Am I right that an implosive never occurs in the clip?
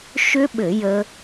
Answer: no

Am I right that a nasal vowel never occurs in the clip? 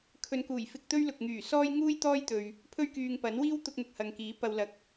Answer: yes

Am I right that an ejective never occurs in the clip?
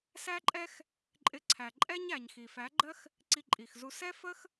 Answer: no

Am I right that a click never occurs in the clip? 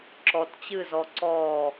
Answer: no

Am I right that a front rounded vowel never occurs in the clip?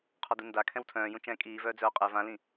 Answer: no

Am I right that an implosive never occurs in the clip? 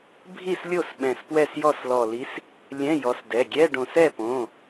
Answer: no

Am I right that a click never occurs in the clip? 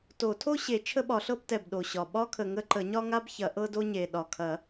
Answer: no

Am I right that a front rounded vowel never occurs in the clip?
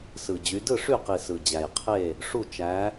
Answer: no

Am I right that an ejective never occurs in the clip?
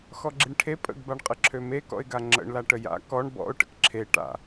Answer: no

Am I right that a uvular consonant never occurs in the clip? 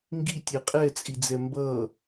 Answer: no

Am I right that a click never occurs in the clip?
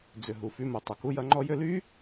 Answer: no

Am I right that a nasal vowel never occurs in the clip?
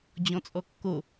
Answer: no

